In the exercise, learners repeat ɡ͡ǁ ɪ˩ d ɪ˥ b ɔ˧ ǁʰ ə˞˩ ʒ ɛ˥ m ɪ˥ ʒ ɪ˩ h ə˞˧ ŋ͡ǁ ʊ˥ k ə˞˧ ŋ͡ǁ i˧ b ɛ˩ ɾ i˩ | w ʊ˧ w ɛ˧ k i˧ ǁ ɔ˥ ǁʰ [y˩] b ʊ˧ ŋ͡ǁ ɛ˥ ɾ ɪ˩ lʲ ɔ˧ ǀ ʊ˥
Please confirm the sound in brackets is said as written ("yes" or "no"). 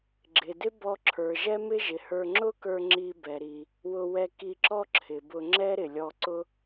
no